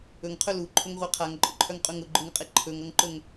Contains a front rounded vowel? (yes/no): yes